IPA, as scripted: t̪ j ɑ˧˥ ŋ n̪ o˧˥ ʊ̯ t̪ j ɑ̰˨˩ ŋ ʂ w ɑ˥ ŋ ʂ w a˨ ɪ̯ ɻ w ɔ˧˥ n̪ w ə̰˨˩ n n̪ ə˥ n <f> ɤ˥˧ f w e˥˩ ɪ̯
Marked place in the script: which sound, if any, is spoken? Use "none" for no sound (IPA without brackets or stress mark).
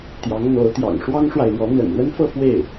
f